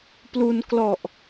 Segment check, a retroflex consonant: absent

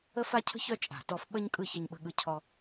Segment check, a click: absent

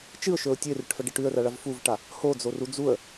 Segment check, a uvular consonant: absent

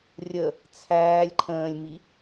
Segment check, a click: present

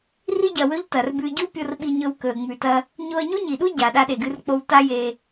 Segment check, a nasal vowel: absent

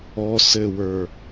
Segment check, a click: absent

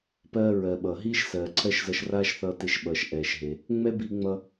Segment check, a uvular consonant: absent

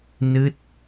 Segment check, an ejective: absent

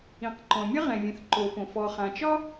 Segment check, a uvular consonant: present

